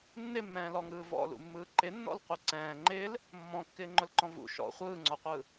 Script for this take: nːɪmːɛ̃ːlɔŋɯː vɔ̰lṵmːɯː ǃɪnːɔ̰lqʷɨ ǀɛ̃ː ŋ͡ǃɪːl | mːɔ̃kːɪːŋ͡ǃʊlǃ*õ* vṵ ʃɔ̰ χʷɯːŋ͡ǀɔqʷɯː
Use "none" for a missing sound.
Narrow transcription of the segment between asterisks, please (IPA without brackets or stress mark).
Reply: ɔ̃